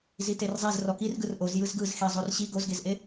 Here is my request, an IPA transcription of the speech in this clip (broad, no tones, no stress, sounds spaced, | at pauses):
z i t e r zˤ e z r ɔ k i r ɡ ɯ r ʔ o z j ɯ z ɡ ɯ z x i zˤ o r ɕ i ɡ o z ɡ e z ʔ e